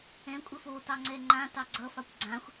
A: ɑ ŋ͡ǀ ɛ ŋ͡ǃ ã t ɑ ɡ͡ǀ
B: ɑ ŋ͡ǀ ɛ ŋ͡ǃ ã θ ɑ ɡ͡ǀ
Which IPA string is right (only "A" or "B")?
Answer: A